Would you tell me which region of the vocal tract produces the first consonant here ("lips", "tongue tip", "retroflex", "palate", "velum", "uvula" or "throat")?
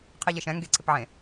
uvula